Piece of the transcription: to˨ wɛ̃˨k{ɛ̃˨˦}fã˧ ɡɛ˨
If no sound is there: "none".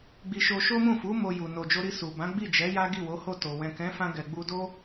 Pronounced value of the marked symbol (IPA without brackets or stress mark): ɛ̃˨˦